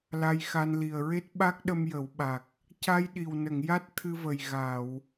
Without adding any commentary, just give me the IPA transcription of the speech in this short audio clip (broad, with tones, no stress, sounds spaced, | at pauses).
l a˧ j x a˧ n l i˨˩ ə̯ ɹ e˦˥ t̚ ɓ a˦˥ k̚ ɗ ə˧ m j ə˨˩˦ w ɓ a˨˩ k̚ | c a˧ j ɗ i˨˩ w n ə˨˩˨ ŋ j a˦˥ t̚ t̪ʰ ɨ˧ v ə˨˩ j ɣ a˨˩˨ w